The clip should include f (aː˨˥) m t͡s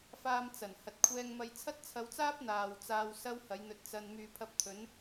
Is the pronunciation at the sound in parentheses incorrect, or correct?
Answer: incorrect